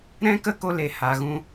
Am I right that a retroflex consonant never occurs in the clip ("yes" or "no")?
yes